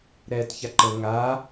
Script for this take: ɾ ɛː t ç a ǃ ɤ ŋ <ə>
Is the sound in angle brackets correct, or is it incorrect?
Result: incorrect